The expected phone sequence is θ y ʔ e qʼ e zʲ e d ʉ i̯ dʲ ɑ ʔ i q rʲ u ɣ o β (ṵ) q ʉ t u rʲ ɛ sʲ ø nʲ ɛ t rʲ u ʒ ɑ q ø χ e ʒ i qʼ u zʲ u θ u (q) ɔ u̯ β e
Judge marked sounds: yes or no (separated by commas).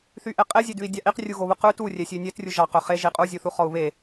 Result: no, no